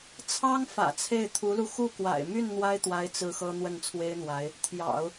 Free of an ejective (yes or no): yes